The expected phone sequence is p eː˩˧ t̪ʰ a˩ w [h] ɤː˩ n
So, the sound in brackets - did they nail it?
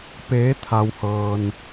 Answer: yes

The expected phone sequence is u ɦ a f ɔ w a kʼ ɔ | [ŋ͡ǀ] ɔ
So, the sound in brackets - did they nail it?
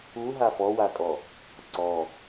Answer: no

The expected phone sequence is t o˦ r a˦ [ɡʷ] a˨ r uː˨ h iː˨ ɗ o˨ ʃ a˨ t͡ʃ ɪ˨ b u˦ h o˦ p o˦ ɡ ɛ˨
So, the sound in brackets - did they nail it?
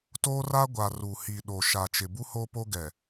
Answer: yes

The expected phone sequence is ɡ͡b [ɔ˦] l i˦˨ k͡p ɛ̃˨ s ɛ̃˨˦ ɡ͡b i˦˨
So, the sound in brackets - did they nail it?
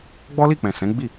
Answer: yes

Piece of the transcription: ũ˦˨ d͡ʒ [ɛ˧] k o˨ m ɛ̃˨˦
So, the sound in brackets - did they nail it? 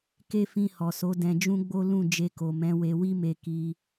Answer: no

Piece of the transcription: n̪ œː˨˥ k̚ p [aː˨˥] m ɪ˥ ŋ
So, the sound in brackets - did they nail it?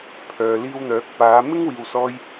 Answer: no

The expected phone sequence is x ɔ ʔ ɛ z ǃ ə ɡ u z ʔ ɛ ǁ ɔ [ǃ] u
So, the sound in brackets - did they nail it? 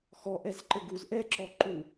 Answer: yes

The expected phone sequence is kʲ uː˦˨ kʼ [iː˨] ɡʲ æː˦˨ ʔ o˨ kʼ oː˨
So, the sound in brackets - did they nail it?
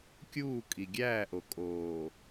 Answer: no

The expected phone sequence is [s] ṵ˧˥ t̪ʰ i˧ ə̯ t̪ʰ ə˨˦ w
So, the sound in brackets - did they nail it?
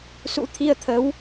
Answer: yes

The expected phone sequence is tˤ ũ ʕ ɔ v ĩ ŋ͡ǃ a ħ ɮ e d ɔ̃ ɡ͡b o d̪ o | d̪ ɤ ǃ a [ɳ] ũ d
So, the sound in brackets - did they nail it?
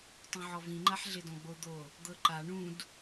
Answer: yes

